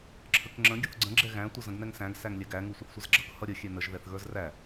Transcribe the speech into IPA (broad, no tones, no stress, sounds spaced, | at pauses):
ǁʰ ə k ŋ͡ǁ ə̃ ɡʲ ə θ ɡ͡ǀ ə̃ ɡ͡ǁ ɛ ɣ æ̃ tʷ ə z ə̃ ɡ n ɛ ŋ s æ̃ ɡ s æ ŋ lʲ ɛ ɡ æ ŋ u sʷ ə θ sʷ ə z ɡ͡ǁ ʌ k h ʌ ɾʲ ə xʲ ɛ n ə ʒ ð ɛ θ ɣ ə˞ z r æ